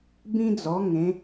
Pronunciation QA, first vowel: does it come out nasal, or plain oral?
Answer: nasal